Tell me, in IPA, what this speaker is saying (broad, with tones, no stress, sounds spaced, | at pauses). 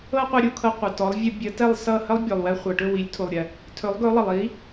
ɤ˥ qʷ ə˧ ɾʲ u˩ kʰ ɤ˧ qʷ ʌ˩ t ɔ˩˥ lˠ vʲ ə˧ bʲ ə˩˥ t ɛ˥˩ lˠ s ʌ˥˩ h ə˥ lˠ bʲ ɵ˩ lˠ w ɛ˧ χʷ ɤ˩ ʈ ɵ˥˩ w i˩˥ lʲ tʰ u˩ lˠ ɾʲ ɛ˩ | tʰ ɵ˩˥ lˠ ɡ ɵ˩˥ lˠ ʌ˩ lˠ i˩˥